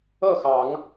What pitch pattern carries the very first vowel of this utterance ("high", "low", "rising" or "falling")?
falling